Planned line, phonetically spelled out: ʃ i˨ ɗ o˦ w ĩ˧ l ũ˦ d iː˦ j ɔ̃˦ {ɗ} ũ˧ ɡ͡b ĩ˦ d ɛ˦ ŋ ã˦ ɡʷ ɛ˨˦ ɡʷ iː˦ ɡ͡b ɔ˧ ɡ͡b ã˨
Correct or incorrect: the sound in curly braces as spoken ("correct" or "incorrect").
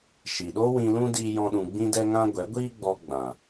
correct